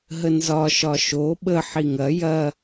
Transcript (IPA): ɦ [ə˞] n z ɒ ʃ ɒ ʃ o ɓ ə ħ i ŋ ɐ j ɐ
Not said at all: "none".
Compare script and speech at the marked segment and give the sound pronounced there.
ə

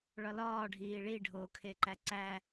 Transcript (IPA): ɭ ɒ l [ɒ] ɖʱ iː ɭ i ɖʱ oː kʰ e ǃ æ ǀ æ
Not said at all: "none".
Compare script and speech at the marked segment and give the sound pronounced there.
ɒː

